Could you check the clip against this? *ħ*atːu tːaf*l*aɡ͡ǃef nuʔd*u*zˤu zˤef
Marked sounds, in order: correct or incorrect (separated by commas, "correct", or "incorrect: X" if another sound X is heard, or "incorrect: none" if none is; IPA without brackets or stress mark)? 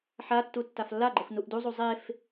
correct, incorrect: lː, correct